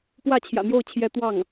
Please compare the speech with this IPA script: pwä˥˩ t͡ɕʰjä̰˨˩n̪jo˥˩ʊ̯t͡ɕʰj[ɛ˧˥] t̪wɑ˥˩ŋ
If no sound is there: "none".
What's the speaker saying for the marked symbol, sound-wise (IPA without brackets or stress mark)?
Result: ɛ˧˥